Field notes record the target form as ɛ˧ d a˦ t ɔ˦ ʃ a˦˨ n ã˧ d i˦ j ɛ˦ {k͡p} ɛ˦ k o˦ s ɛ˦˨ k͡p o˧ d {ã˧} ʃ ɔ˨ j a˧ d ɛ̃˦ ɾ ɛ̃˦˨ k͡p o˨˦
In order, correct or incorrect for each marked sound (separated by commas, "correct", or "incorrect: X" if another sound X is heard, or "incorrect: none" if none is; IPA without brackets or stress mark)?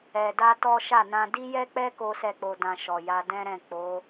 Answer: correct, correct